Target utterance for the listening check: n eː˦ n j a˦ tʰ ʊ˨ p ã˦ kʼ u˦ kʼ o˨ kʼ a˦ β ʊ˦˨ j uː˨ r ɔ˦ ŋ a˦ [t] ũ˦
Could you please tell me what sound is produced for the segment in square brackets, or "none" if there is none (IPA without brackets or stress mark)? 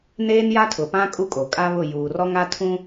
tʰ